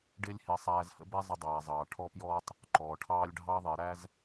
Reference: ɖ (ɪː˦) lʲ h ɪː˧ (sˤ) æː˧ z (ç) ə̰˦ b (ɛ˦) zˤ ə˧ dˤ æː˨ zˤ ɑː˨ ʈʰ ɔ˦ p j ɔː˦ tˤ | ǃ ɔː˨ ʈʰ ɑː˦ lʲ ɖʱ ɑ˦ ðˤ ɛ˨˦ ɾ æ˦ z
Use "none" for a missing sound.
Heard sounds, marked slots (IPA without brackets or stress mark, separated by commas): ɪː˦, sˤ, h, ɛ˦